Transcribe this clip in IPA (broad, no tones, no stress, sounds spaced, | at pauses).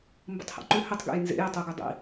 m b ə̰ tˤ h ḛ ǃ ʏ h ʏ tˤ ɡ ḛ j n z ḛ j ə tˤ u ɡ ʏ dˤ ḭ